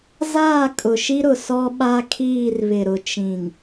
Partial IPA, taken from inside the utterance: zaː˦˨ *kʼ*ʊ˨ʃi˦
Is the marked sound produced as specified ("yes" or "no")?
yes